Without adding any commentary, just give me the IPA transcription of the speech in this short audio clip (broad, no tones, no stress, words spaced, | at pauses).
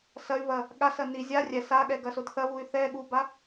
sɐy̯βɐ | ɠasɐ ni zʲa rʲɛ saɠɛɡɐsod θɐβuy̯ θɛ ɠuba